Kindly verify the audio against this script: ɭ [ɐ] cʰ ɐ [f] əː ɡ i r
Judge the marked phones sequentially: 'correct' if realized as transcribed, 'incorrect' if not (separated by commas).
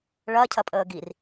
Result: correct, incorrect